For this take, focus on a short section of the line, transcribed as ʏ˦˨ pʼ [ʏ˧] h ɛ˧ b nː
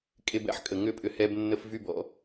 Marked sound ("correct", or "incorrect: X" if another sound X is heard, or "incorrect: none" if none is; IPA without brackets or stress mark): correct